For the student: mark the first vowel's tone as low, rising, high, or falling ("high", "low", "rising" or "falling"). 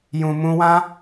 low